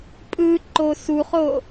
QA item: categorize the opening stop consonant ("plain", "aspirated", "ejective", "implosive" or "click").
ejective